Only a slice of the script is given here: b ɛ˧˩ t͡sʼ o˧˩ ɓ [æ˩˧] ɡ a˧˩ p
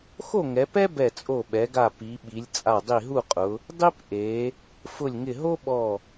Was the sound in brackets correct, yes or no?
no